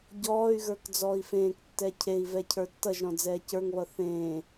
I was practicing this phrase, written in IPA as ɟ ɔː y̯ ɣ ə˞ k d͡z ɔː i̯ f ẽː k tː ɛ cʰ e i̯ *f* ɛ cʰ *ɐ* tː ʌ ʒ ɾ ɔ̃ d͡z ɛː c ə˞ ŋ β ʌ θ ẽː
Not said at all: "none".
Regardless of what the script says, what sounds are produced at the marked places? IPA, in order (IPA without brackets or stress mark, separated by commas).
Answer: v, ə˞